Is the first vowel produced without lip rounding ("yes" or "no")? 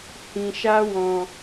yes